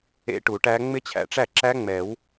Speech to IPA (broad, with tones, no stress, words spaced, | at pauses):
ḛ˦˥ʈu˨˩˦ʈæ˦˥ ŋ͡mɪ˦˥t͡ɕʰæ̰˨ʈ͡ʂæ˥˩ǁæ˦˥ ŋ͡mɛ˨˩˦w